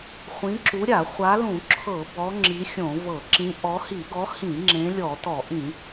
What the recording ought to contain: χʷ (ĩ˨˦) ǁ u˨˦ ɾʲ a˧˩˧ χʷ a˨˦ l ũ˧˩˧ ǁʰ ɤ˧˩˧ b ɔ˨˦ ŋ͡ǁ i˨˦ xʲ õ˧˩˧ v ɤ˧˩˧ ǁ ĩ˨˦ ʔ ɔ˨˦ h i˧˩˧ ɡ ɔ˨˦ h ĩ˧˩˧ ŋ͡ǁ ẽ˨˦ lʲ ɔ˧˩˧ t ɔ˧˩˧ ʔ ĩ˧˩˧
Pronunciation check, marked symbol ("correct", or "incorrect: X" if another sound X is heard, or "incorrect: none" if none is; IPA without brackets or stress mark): correct